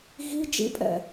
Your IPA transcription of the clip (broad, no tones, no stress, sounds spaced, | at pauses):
ɣ i d͡ʒ ḭ pʼ ɛ̰